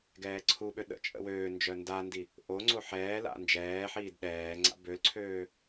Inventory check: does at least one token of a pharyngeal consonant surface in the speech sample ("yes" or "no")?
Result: yes